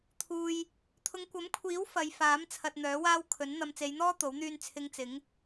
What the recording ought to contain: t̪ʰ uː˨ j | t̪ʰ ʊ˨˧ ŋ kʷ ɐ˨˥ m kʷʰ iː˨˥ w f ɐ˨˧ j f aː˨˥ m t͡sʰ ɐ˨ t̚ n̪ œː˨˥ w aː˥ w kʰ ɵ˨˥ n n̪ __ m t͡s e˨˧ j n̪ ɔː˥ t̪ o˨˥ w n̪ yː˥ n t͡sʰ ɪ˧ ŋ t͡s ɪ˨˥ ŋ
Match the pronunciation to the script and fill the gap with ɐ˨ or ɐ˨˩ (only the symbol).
ɐ˨